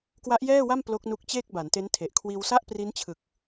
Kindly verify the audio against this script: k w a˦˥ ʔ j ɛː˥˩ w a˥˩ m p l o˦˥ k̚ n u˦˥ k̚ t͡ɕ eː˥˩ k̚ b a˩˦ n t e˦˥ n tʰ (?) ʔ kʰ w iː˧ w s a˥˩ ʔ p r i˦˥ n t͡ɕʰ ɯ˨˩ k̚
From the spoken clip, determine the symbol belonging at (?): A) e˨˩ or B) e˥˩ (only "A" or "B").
A